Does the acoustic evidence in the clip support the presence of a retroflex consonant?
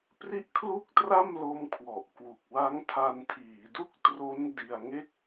no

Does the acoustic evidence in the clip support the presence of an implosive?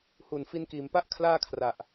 no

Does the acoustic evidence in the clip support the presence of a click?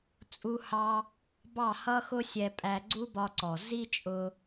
yes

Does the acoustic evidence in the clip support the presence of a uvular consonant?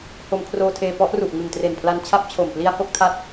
no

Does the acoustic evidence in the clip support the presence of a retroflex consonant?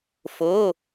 no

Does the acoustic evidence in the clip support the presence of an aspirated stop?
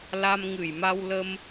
no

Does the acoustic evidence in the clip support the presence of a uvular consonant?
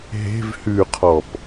yes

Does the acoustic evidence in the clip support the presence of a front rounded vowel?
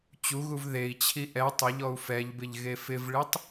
no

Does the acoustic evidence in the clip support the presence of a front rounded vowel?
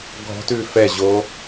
no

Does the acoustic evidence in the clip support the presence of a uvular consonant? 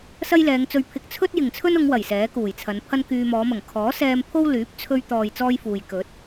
no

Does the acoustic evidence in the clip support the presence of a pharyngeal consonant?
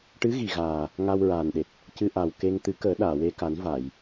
no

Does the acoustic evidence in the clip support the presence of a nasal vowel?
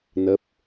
no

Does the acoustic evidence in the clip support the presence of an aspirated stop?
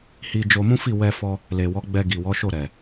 no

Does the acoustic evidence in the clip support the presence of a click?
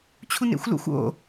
no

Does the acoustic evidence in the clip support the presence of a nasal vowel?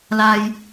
no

